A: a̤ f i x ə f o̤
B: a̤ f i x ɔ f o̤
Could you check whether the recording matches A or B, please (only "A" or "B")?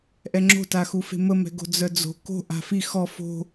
B